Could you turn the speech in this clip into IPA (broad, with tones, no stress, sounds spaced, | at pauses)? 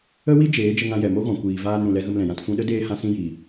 ə˦ w i˦ d͡ʒ eː˨˦ d͡ʒ ə˧ ŋ ã˧ j ɛ˨ m o˦ ɣ ɔ̃˨ kʷ iː˨ v aː˧ n ɾ ũ˨ l ɛ˧ ɣ ə˧ m l ɛ̃˨ j ã˧ t f ũ˧ ɗ ə˦ d eː˧ h ã˧ s ĩ˧ j i˨